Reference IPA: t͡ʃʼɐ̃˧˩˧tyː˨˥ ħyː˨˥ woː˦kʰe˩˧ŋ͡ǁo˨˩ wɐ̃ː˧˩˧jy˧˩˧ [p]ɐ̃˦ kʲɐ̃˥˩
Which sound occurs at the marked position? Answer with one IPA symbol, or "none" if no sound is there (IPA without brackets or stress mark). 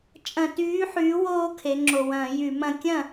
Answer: m